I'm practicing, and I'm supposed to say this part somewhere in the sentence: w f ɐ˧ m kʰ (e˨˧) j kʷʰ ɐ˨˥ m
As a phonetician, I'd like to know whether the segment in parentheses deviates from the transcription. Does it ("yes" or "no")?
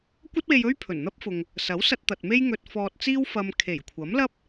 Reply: yes